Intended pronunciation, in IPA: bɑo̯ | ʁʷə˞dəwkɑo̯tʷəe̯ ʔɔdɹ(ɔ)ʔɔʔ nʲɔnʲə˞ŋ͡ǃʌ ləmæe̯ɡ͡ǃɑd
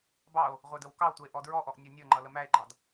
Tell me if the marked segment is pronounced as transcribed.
yes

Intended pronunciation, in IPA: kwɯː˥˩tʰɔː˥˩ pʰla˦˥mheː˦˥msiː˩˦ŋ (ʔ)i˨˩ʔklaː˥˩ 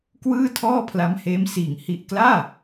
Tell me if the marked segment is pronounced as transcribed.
no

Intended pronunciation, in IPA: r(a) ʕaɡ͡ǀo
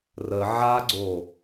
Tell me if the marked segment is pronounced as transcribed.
no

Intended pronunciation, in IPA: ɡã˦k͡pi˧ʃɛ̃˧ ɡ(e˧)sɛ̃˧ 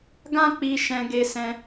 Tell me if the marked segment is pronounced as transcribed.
yes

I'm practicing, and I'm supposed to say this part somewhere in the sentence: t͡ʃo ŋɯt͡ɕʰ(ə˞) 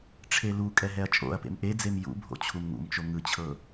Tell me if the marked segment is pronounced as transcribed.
no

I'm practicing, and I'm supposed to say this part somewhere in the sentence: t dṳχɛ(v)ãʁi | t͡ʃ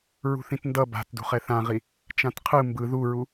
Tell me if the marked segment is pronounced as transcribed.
no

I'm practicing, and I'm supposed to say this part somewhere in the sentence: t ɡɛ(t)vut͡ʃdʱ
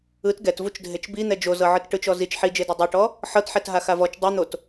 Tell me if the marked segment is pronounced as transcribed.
yes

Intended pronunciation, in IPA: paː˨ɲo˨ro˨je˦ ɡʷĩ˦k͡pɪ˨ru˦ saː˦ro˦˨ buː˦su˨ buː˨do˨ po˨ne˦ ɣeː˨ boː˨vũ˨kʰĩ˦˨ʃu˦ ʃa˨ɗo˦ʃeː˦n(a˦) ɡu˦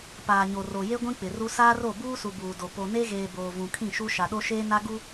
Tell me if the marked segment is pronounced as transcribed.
yes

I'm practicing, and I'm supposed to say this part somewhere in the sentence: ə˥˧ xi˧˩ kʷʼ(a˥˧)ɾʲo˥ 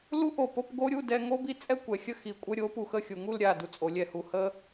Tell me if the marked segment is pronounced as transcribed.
no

